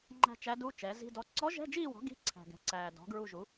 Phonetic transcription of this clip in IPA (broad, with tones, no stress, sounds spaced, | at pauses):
ŋ͡ǃ æ̤˦˨ t͡ʃ æ˧˥ d u˧˥˧ t͡ʃ ɛ˩˥ z i̤˧˥˧ d ɔ˧˥ ǀ ɔ˧˥ ʒ ɛ̤˧˥˧ d͡ʒ iː˦˨ w ɔ̤˩˥ ɡ i̤˧˥˧ ǀʰ æ̤˨ ɡ ɛ̤˩˥ ǀ æː˨ d ɔ̤˩˥ ɡ ɹ u˦˨ ʒ u˩˥